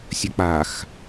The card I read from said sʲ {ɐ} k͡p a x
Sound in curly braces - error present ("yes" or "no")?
no